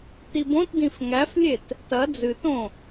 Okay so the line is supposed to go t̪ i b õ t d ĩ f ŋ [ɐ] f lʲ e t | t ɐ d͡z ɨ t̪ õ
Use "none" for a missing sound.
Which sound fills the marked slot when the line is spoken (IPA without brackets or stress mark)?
æ